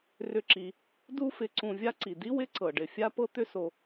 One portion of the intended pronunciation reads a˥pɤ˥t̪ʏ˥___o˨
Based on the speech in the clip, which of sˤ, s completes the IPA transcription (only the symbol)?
s